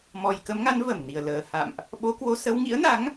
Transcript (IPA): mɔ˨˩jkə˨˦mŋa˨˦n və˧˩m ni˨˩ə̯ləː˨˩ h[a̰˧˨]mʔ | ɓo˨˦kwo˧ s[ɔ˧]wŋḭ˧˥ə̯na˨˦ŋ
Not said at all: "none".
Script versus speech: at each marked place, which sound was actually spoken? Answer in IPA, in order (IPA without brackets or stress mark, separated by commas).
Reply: a̰˧˨, ə˧